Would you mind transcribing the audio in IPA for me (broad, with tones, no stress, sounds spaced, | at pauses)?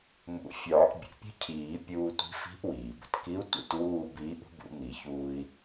m ṵ˨˩˦ fʲ ɒː˨˩˦ ʔ bʲ ə̰˩ ʔ pʲ ə̤˥˧ cʰ iː˨˩˦ pʲ uː˧ tʷ i̤˧˥ f i̤˧˥ ʔ w iː˩ b ə̤˧ t k i˧˥ u̯ tʷ ḭ˨˩˦ t w uː˥˧ b iː˧˥ ʔ ṳ˧˥ b ṵ˨˩˦ m i˨˩˦ ç uː˧ i̯